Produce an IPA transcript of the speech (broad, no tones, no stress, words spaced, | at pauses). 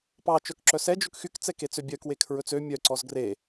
pɑ t͡ʃœkǁœsɛ d͡ʒɵkxyk t͡sɛket͡søbʲœk wekʰɹɵt͡sø mʲœ ǀɔzɡre